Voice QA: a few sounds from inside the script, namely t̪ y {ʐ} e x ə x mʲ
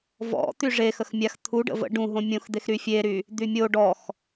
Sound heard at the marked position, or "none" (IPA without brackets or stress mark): ʐ